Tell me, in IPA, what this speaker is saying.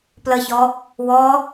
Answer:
pləçɔ | wɔ

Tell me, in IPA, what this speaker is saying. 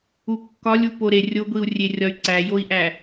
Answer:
ukːɒlʲ upoɾe rʲoɡʷiu̯rʲerʲɒy̯ ǀæjoi̯ʔæ

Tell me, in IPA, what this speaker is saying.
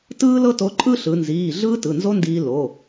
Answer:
tɯː˥lɤ˥to˧˥ ǃʼɯ˥ɬɯ˩˧nziː˩˧˩ ɮɯː˥tɯ˩˧˩nzo˥ndiː˧ lo˩˧˩

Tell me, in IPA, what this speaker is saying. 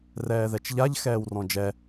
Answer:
rɛːðɛt͡ʃʎaʎ xɛːwrɔ̃d͡ʒɛ

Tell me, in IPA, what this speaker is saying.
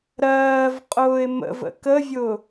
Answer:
ɾɜːvqʼʊːɪ̯ mə̰və̰ kəvʲʊ

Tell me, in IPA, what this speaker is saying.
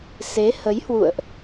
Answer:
se˨˦hə˨˦jhwṵ˧˨ə̯ʔ

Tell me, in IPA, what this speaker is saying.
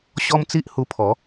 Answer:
ɕɔ˦mt͡si˦ʔhu˧pʰɔ˨˦

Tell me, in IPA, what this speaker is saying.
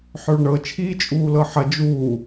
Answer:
ħœɭɳɤ t͡ʃʰiːt͡ʃʼuːlɤħɐ d͡ʒu

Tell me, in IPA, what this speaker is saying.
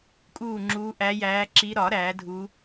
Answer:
kʼuː˥˨ŋ͡ǁuː˧˥ ʔæ˧˥jæː˧˥ǁi˧˥ ɾɒ˨˩˦ ɾæː˩˥dʱu˧˥

